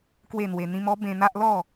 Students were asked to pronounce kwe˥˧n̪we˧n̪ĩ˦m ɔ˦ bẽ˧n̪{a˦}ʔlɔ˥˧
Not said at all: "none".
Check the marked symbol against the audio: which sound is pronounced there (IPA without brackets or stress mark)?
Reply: a˦